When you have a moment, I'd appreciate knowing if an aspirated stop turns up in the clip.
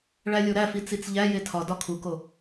yes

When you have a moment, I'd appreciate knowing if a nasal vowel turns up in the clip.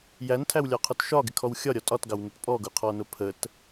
no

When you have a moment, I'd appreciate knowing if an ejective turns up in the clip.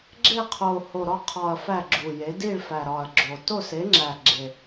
no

